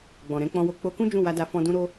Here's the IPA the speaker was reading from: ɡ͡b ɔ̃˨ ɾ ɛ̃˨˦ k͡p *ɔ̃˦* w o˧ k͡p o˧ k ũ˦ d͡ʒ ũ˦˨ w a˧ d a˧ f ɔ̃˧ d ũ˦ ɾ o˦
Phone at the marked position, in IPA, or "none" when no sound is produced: ɔ̃˧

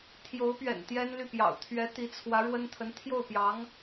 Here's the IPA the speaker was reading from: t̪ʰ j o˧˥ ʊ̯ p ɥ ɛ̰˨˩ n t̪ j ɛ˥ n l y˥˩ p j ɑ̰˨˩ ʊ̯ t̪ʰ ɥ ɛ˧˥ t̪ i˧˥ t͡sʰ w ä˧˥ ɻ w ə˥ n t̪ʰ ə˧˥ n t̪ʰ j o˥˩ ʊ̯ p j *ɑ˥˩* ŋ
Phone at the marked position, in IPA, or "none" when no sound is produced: ɑ˧˥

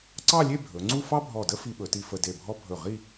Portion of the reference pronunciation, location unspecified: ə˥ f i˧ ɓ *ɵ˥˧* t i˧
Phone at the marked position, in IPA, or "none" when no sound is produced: ɵ˩˧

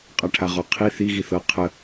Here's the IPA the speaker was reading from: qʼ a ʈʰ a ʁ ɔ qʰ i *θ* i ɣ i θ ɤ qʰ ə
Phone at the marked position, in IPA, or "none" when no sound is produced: θ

